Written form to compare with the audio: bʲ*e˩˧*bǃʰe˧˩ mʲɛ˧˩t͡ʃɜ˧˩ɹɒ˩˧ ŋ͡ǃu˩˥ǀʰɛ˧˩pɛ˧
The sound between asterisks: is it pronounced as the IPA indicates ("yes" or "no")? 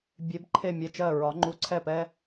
yes